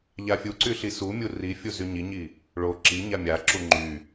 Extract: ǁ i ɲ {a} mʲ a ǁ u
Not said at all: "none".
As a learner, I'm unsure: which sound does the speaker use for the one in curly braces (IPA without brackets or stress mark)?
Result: a